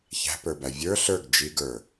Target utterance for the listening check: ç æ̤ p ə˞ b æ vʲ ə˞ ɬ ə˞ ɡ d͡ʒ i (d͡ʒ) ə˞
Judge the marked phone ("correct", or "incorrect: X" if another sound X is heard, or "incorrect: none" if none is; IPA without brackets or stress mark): incorrect: ɡ